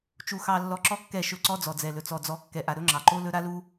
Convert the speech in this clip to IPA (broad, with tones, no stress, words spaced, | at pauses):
t͡ʃu˧xɑ˧lːɔ˧ ǁɔ˦kːɛ˦˨ʃɵ˦˨ǀɔ˦ d͡zɔ˨d͡zɛ˨lɵ˨ t͡sɔ˨d͡zɔ˨˦kːɛ˨ʔa˨ ɾɵ˦ŋ͡ǁɑ˨ǃo˦lɵ˦ ɾa˦lu˦